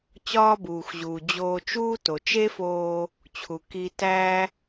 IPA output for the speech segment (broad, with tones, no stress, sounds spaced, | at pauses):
t͡ɕ ɒː˥ b uː˩ x ʑ uː˩ d͡ʑ oː˧ t͡ʃ uː˥ t o˩ t͡ʃ e˥ f oː˧ | t͡ɕʰ u˩ k i˧ t æ˥